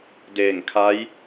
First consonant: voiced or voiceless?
voiced